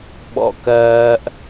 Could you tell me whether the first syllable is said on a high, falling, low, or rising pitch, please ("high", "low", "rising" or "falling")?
low